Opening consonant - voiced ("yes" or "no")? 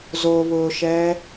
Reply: yes